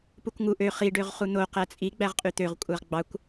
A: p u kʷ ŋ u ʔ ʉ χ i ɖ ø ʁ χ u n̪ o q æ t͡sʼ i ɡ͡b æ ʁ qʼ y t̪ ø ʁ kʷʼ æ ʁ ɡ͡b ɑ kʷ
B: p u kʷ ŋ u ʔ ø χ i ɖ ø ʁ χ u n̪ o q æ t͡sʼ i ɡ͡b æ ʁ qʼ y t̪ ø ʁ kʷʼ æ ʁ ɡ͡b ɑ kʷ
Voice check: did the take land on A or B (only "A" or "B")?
B